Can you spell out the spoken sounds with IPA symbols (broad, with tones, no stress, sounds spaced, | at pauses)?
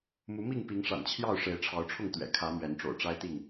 m u˨˦ m i˥˨ ŋ p i˨˦ ŋ ʂ a̰˨˩ n t͡ɕʰ j ɑ˥˨ ʊ̯ ʂ e˨˦ ɪ̯ ʈ͡ʂʰ ɑ˨˦ ʊ̯ ʈ͡ʂʰ ʊ˥˨ ŋ t̪ ɥ ɛ̰˨˩ kʰ ä˨˦ m ɥ ɛ˨˦ n ʈ͡ʂ o̰˨˩ ʊ̯ ʈ͡ʂ a˦ ɪ̯ t̪ i˥˨ ŋ